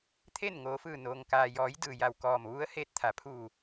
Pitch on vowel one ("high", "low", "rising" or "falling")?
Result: falling